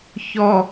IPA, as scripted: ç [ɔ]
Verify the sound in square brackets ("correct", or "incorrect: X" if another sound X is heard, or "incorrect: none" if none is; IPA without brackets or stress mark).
correct